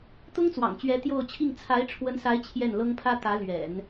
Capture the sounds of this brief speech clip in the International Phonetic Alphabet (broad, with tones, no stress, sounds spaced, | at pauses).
t̪ ʊ˥ ŋ t͡s w ɑ̰˨˩ ŋ t͡ɕ ɥ ɛ˧˥ t̪ j o˥˧ ʊ̯ t͡ɕʰ i˥˩ ŋ t͡sʰ a˧˥ ɪ̯ ʈ͡ʂʰ w ə˧˥ n s a˧˥ ɪ̯ t͡ɕʰ j ɛ˥˩ n l ɤ˥ ŋ pʰ ä˥ t̪ ä˧˥ l ɥ ɛ̰˨˩˦ n